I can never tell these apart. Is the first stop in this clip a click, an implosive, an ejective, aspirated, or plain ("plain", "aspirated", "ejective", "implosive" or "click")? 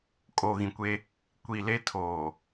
ejective